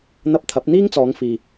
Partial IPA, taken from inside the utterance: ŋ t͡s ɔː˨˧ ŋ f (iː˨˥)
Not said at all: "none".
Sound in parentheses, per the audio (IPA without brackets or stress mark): iː˨